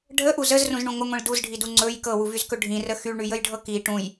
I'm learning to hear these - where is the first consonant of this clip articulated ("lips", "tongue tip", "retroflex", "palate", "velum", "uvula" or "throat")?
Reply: retroflex